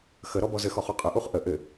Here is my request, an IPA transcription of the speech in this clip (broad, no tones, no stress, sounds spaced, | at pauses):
x ə ɾ ɔ b ɔ z ɘ x ɔ χ u qʼ ə ʔ u χ ʔ ə ʔ ɘ